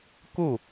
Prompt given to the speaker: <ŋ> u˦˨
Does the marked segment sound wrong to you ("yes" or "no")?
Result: yes